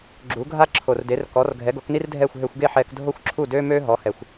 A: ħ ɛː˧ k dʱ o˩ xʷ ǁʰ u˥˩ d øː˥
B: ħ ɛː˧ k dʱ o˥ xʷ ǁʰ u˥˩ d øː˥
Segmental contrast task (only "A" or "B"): B